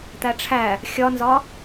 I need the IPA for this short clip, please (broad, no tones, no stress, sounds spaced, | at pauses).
t̪ æ ʈ͡ʂʰ æ | xʲ ɒ n z ɒ